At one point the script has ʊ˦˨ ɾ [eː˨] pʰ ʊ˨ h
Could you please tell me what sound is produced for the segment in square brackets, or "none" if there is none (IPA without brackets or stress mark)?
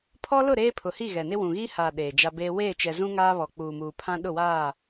eː˦